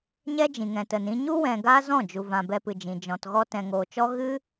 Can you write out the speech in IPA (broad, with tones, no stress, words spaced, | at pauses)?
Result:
ɲɛ˦d͡ʒĩ˨ŋɛ̃˨ tə˨nĩ˧ɲu˦ wɛ̃˨ ɡaː˦zɔ̃˦˨d͡ʒu˨vã˨ bɛ˧pɨ˨d͡ʒĩ˨ d͡ʒɔ̃˨tɣɔ˧ tɛ̃˨ŋoː˨t͡ʃɔ˦ ɣɨ˦